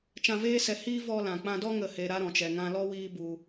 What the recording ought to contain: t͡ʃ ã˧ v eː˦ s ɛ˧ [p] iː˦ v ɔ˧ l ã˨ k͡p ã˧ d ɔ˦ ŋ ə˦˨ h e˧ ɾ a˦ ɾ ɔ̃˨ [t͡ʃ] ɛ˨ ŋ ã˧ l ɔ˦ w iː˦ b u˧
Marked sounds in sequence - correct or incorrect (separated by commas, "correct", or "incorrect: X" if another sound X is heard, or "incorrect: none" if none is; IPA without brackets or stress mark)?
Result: incorrect: h, correct